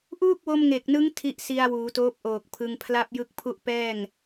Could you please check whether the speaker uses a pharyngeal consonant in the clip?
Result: no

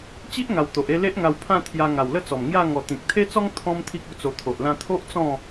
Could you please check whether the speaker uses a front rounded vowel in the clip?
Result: no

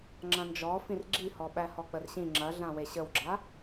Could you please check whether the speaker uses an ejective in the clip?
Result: no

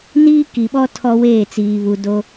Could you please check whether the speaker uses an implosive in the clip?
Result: yes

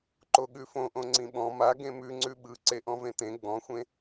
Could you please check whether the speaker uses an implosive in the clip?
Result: yes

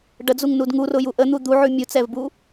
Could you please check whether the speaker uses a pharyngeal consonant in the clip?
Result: yes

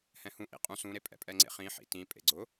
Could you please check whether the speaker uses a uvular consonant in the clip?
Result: yes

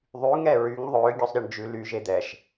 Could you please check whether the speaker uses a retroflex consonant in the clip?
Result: yes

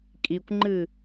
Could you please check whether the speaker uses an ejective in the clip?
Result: yes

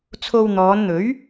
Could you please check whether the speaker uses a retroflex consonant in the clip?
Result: no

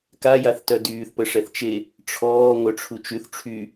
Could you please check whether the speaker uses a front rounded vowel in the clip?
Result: yes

